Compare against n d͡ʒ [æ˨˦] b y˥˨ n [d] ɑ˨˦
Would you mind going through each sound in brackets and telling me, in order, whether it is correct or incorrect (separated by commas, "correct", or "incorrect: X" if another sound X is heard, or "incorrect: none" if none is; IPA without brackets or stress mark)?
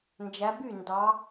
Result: correct, correct